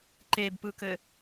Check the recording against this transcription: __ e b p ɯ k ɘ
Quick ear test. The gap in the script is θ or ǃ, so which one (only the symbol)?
ǃ